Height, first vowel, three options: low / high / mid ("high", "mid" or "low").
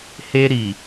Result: mid